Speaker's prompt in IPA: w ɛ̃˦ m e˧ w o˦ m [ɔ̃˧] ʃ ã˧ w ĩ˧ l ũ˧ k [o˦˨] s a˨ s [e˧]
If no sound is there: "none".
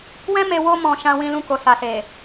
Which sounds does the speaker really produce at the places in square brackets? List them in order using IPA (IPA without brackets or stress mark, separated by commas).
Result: ɔ̃˧, o˨, e˨